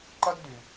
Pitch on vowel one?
high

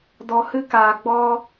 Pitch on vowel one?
low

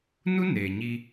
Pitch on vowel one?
high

